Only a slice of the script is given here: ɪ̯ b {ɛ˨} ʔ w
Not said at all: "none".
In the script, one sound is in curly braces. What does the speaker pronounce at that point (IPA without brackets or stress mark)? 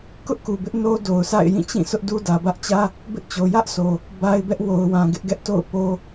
ɛ˦